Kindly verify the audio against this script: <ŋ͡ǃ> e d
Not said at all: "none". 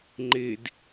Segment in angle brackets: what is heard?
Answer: ŋ͡ǃ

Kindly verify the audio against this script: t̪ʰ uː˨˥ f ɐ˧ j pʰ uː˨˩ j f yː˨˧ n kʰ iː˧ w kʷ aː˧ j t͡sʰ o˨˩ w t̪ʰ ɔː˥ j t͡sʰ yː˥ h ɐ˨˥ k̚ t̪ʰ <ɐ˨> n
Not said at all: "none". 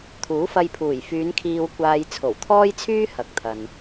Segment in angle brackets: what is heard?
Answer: ɐ˨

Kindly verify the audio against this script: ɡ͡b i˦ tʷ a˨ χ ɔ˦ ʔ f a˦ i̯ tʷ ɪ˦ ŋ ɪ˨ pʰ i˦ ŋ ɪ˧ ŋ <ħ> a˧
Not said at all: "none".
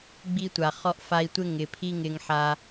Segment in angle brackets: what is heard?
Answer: ħ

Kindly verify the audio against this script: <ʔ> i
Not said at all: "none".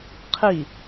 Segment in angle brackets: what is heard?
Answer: qʰ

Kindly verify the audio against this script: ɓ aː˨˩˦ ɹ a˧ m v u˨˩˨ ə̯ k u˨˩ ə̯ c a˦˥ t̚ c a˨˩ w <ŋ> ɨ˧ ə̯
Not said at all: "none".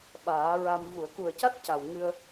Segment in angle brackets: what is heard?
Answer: ŋ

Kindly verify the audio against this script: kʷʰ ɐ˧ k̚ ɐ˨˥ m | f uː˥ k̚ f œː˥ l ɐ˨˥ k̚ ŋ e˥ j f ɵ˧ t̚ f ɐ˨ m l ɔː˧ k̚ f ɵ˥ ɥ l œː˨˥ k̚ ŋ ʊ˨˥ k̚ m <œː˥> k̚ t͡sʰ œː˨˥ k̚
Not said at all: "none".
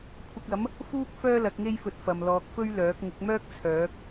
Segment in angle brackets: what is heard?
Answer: œː˥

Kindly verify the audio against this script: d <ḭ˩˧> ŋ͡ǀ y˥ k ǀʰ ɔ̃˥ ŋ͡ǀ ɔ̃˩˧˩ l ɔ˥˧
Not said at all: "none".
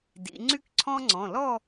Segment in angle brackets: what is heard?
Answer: ḭ˩˧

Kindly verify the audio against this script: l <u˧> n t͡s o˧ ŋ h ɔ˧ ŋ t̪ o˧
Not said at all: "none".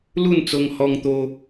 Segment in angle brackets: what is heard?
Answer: u˥˧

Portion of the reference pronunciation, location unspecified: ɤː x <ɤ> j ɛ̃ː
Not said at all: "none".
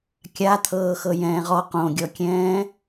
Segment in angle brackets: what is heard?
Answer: ɤ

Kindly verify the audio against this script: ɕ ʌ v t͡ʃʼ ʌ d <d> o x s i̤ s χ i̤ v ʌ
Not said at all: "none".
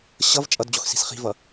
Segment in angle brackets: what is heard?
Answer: d͡ʑ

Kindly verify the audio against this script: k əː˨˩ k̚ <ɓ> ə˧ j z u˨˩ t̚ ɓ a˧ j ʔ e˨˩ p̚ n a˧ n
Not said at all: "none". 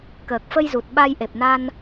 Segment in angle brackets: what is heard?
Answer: f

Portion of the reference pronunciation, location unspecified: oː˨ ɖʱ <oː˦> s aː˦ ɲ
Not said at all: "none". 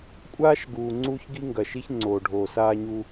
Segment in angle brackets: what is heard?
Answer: oː˨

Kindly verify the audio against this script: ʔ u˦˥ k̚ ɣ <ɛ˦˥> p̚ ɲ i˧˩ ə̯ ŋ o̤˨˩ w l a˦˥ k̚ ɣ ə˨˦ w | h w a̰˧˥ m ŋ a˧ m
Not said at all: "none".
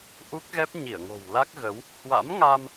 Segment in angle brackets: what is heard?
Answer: ɛ˦˥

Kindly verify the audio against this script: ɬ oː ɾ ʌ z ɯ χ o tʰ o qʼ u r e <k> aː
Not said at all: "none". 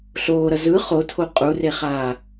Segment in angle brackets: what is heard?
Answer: χ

